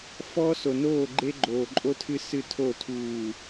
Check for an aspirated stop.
present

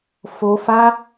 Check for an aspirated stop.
absent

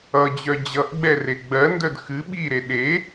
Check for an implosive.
present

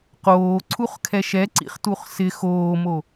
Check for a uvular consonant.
present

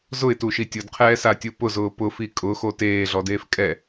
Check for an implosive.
absent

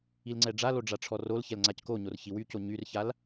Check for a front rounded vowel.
present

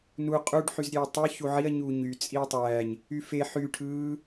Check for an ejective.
present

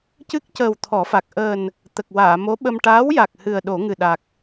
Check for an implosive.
present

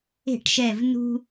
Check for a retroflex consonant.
present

